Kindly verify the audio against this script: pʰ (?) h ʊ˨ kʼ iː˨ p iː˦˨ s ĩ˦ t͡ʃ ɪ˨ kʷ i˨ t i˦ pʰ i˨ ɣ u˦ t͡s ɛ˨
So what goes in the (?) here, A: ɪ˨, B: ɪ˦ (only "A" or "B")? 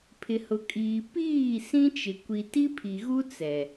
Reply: A